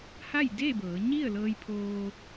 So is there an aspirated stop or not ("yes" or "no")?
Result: yes